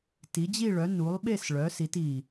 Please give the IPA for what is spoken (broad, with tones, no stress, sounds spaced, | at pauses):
t i˩˧ d͡ʑ i˦˨ ɭ œ˩˧ n u˩˧ lˠ ɓ e˦˨ s ɭ œ˩˧ s i˩˧ t i˨˩